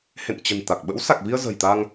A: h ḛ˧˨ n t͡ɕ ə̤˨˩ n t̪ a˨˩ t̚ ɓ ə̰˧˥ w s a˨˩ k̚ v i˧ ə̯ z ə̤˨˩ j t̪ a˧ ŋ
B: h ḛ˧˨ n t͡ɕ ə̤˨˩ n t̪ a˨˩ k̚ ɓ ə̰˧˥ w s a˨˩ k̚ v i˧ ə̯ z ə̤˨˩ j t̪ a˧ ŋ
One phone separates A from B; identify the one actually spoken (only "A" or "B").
B